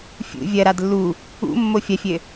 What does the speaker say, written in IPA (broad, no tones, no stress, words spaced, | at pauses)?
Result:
fʲṵ vʲɐɾad lːu | ṵmːo fʲɐfʲɘ